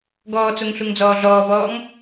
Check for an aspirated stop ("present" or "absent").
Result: absent